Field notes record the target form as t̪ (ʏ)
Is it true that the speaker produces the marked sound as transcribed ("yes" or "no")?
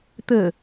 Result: no